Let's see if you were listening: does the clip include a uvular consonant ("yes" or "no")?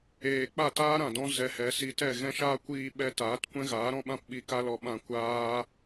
no